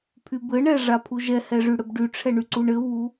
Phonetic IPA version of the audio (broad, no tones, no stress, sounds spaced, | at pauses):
pʰ y b ɘ ɳ ɛ ʐ a pʰ u ʒ ɛ h ɛ ʐ y ɽ ɘ b ɖ y ʈ͡ʂʰ ɛ ɳ y ǀ u ɳ ɘ β u